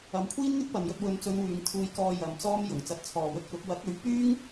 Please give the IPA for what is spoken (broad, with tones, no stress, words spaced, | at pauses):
ɐ˨˧mkʷʰiː˥n ŋɪ˥k̚pɐ˨njɵ˧t̚ wɵ˨nt͡sɵ˨˧n wyː˨˧ŋt̪ʰuː˧jkɔː˧ jɐ˨˧mt͡sɔː˥mjʊ˨˩ŋ t͡sɐ˨˥t̚t͡sʰɔː˨wɵ˧t̚kʊ˨˥k̚ wɐ˨˥k̚ɵ˨˥ɥpyː˥ŋ